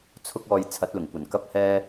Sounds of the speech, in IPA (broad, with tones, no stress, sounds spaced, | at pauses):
t͡sʰ ʊ˥ k̚ ɔː˧ j t͡sʰ ɐ˨˥ t̚ l ʊ˨˩ ŋ kʷ ɐ˨˩ n k ɐ˥ p̚ h ɛː˥